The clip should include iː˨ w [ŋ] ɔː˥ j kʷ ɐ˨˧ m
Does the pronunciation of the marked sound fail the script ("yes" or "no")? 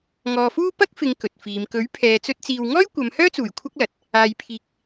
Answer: no